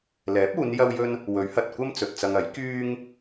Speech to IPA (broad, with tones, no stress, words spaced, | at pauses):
lɛː˨˥p̚uː˨˧n jɐ˥wjɵ˥n | wɵ˨˥ɥhɐ˨t̚kʷɐ˥m t͡sɵ˨t̚t͡sɐ˧ŋɐ˨˥j kyː˥ŋ